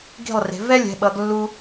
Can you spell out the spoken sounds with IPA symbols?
ɡ i̤˥˨ lˠ r e̤˨˦ v ɛ˥ lʲ ɛ̤˨˦ ɓ ʌ˨˦ ɡ lː u˥

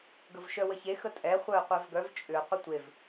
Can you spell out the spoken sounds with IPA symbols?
ɡ ə v ʃ œ w ə ç e x ə tʼ ɛ χʷ œ ə̯ qʷ ɛ v ɡ œ v t͡ʃʼ ʏ ə̯ qʷ ɪ tʷ e v

